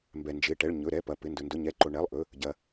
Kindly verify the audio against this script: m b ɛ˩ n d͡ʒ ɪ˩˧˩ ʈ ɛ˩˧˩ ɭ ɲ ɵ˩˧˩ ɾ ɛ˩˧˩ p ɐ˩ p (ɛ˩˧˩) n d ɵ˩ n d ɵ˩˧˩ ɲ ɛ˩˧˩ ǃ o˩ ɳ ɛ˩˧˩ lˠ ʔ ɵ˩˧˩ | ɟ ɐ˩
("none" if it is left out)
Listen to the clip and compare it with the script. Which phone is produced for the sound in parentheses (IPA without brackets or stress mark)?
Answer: ɪ˩˧˩